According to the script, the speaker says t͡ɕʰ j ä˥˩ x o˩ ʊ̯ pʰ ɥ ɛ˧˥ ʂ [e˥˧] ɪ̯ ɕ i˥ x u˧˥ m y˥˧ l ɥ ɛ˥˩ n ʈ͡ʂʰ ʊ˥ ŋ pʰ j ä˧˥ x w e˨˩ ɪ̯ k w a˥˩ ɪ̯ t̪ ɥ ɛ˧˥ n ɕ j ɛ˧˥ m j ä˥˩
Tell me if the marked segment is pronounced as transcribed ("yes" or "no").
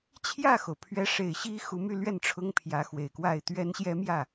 no